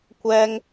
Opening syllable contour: high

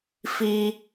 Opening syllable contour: high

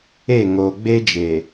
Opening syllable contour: falling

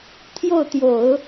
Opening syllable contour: falling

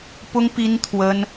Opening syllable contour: high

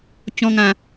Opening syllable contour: high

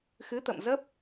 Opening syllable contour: rising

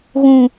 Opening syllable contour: low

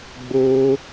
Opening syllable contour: high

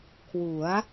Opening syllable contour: rising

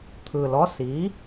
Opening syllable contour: low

